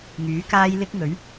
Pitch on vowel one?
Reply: rising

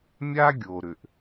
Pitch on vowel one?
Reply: high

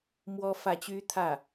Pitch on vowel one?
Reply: high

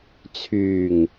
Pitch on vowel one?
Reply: low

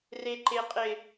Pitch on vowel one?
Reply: high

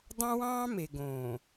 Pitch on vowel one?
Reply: high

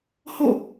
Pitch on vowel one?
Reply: falling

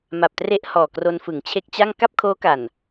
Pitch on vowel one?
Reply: low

